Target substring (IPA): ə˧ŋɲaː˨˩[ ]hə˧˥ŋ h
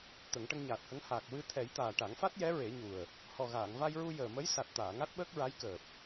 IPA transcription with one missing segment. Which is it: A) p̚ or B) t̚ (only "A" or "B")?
B